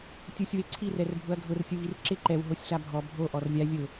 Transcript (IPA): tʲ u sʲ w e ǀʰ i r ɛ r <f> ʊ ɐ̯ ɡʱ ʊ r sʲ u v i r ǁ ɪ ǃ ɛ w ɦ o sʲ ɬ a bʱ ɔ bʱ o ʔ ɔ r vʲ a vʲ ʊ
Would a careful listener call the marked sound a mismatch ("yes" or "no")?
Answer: yes